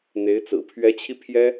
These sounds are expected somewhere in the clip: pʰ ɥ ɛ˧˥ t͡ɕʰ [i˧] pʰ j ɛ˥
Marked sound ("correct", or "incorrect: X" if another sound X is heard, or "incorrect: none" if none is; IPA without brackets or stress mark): correct